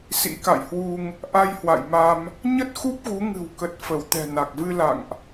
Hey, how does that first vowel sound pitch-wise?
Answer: rising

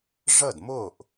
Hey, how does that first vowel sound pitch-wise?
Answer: falling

